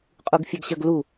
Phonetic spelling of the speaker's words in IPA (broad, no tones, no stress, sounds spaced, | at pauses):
qʼ u ɡ fʲ e ɡ ɕ ə ɡ l u